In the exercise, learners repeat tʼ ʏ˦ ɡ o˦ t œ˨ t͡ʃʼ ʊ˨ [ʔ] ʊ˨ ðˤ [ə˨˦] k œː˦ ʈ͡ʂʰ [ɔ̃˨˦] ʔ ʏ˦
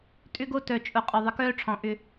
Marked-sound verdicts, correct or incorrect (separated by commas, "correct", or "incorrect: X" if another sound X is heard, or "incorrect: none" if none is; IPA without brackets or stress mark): incorrect: qʼ, correct, correct